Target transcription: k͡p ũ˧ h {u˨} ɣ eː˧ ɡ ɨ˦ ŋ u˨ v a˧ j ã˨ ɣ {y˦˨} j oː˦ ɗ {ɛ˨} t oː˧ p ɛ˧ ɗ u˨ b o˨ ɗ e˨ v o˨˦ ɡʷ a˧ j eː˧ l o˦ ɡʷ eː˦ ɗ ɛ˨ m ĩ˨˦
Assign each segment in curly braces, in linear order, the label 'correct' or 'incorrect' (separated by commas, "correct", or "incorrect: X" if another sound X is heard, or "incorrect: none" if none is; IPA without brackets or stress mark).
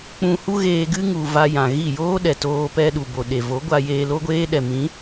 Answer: incorrect: u˦, incorrect: i˦˨, correct